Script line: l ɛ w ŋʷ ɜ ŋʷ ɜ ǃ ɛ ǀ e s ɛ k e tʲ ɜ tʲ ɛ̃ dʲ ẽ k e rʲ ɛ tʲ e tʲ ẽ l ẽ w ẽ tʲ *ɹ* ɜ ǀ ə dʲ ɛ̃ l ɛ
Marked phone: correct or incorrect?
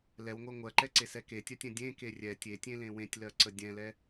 incorrect